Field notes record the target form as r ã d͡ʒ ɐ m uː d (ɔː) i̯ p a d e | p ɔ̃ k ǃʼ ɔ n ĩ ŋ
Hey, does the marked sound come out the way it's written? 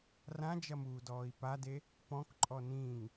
yes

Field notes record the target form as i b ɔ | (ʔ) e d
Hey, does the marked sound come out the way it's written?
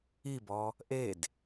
yes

